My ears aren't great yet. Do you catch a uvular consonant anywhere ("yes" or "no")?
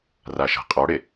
yes